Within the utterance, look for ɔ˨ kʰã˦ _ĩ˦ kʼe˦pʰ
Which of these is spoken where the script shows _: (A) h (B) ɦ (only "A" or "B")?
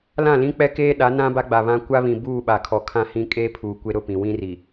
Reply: A